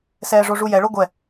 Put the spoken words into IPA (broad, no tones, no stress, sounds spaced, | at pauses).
s ɛː ʐ o ʐ u j ɛ ɭ o ɡʷ ɛ